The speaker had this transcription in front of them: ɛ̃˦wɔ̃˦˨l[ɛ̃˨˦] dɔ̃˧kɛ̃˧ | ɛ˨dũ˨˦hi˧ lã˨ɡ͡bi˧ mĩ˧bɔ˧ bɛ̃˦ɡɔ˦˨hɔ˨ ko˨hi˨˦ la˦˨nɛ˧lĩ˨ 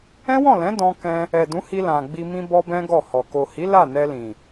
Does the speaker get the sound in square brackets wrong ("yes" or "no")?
no